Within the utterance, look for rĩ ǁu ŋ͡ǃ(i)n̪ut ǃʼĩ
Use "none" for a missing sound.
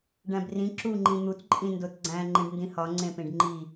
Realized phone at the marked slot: ĩ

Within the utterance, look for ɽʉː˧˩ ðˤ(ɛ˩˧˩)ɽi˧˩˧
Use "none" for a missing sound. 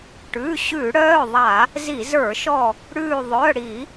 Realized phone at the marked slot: œ˩˧˩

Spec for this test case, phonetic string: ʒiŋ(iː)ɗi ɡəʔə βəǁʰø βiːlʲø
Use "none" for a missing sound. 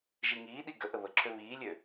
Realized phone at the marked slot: iː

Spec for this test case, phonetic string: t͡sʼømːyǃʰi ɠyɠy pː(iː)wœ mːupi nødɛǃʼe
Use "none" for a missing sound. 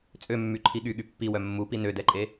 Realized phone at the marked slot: i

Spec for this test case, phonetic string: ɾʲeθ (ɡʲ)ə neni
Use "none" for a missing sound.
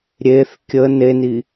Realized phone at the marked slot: kʲ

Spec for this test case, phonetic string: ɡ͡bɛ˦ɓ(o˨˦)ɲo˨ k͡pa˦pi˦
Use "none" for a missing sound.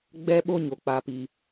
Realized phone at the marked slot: o˦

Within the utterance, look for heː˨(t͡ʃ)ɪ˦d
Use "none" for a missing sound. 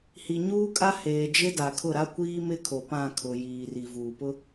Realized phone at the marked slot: d͡ʒ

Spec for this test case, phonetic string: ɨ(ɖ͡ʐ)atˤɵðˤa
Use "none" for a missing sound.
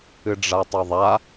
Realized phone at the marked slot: ɖ͡ʐ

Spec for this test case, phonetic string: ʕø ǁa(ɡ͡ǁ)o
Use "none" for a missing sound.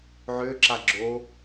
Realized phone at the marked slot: ɡ͡ǁ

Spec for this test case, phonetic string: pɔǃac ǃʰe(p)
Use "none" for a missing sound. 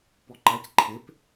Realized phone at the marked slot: p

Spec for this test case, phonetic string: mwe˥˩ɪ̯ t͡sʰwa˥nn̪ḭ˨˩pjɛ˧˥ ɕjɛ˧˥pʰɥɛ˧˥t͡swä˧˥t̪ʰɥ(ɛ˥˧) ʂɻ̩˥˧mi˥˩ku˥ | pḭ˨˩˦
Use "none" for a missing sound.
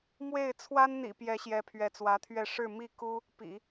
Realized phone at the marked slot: ɛ˥˧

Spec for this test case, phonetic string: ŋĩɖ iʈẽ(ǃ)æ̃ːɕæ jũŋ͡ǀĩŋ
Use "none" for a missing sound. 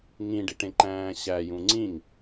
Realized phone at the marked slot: ǃ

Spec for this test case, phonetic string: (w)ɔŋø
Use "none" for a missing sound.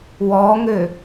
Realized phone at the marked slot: w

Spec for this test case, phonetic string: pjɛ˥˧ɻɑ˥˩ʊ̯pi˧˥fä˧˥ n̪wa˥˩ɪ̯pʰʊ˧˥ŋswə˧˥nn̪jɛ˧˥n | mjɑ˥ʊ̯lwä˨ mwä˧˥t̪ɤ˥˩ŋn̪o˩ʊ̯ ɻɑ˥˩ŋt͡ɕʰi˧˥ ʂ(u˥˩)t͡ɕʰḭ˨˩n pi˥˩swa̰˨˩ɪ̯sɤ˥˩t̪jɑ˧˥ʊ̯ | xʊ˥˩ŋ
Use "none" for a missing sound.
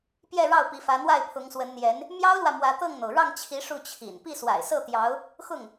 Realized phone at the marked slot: u˥˩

